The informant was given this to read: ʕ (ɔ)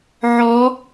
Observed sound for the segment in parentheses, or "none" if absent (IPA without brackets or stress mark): ɔ